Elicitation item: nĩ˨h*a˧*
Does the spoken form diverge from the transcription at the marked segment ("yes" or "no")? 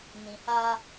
no